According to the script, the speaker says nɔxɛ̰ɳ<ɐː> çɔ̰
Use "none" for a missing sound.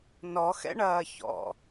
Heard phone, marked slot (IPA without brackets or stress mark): ɐː